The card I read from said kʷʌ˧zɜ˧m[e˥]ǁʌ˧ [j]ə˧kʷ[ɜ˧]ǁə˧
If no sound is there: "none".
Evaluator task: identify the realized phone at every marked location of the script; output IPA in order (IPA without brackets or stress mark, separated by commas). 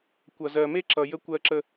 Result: e˥, j, ɜ˧